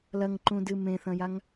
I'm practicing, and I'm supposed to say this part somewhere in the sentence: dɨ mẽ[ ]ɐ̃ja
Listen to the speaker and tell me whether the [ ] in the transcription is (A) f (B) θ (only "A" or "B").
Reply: B